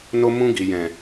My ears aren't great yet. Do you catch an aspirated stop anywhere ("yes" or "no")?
no